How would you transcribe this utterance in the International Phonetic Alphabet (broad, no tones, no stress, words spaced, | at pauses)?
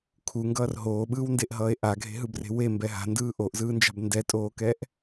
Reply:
kʰuŋɡʌːr ɦoːɓɯːwndeʔɦʌːe̯ ʔaɡʱe̤ɦɯbre̤ wembɛ ɦa̤ndɯː ʔoʔzɯːnd͡ʒa̤b ndɛtʼoːkɛʔ